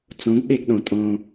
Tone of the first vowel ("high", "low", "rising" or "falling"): rising